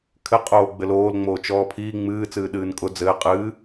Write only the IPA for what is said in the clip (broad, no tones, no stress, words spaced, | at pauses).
kʰɘqʼoːɡ͡bɘ loːlŋ͡moː t͡ʃɔːpʰiː ŋ͡mɨː t͡sɨːɗɨːnkʼʊ d͡zɘː qʼɨː